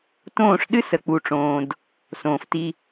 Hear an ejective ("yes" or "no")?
no